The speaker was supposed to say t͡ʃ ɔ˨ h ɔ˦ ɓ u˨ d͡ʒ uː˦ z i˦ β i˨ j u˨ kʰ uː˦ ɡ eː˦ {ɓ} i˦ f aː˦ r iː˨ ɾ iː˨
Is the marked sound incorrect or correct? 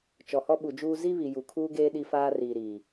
incorrect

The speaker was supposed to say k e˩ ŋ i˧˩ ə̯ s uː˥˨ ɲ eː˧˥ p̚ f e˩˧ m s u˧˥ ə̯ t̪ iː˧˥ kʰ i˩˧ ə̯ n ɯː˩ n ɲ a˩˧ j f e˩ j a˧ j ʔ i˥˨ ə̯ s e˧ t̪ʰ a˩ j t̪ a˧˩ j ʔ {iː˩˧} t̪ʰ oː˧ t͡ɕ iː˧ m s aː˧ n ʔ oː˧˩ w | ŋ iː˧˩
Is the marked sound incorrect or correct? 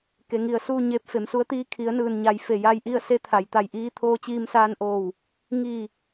incorrect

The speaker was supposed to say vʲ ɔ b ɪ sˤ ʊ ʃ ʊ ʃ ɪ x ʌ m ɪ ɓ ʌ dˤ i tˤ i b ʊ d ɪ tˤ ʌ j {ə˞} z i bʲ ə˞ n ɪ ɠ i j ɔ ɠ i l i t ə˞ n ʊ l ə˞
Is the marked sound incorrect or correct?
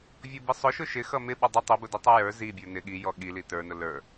correct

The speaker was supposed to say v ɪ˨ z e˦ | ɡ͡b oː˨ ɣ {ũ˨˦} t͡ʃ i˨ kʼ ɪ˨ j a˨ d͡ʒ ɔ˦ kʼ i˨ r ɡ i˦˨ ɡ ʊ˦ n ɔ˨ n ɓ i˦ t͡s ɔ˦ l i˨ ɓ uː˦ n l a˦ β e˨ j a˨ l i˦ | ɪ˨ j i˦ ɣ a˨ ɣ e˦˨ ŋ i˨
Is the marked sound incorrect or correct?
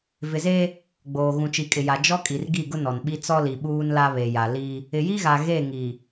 incorrect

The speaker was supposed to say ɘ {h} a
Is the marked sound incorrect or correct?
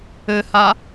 correct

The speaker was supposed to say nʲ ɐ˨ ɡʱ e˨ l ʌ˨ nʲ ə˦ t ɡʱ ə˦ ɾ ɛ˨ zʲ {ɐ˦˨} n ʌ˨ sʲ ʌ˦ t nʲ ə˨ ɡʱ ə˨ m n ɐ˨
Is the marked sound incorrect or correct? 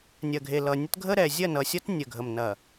correct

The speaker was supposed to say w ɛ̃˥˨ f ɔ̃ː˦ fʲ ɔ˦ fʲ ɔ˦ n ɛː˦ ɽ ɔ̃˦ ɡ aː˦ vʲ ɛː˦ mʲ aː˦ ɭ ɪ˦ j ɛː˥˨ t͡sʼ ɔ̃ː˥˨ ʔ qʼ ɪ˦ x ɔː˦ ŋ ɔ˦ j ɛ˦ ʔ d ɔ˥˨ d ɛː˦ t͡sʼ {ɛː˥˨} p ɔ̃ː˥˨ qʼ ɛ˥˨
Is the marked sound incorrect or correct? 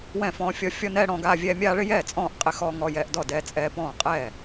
incorrect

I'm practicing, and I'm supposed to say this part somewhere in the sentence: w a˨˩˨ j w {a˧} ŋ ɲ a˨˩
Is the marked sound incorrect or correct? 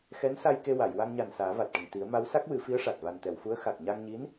correct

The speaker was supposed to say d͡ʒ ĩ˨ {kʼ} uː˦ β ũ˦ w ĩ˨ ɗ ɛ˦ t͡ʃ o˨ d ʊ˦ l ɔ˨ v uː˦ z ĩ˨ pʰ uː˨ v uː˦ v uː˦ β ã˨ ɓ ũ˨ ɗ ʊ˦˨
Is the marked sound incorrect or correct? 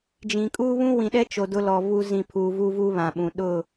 correct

